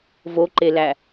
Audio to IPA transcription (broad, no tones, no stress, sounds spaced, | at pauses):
v o ǃ e l æ